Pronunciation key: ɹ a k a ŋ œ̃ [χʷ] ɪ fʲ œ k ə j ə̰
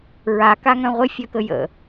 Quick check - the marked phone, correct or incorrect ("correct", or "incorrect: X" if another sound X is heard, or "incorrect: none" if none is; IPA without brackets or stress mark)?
incorrect: ʁʷ